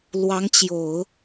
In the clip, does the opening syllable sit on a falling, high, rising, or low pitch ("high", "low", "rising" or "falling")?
rising